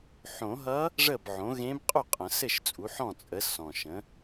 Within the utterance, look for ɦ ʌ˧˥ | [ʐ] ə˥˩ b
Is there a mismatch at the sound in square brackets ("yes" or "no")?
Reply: no